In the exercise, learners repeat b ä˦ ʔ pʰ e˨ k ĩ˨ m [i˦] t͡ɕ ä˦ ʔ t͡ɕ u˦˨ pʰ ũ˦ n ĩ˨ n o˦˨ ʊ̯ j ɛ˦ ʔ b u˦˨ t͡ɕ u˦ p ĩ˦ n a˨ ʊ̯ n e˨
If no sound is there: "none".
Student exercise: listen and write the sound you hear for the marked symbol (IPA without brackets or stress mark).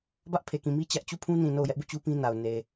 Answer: i˦